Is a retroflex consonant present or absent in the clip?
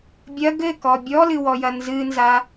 absent